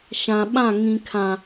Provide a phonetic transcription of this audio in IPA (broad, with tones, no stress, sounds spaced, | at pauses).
ʃ ã˨ ɓ ã˦˨ ŋ ĩ˨ kʰ ã˨